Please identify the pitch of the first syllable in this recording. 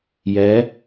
rising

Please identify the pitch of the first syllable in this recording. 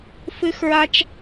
high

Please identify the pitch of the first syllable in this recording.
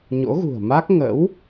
rising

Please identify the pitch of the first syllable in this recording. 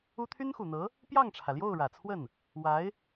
high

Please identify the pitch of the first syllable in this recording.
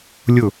falling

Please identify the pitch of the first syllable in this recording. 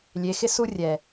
rising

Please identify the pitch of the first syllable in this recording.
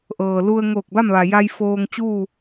low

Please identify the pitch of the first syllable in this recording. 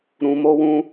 low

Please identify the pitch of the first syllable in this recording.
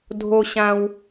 high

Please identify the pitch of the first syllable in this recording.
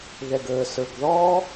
low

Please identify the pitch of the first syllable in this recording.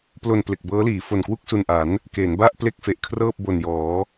low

